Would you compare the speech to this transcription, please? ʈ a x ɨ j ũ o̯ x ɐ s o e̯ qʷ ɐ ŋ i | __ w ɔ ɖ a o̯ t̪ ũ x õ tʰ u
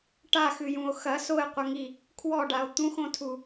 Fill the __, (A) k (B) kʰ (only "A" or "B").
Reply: B